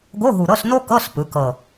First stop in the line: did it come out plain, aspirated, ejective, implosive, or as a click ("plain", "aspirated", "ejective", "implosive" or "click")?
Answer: plain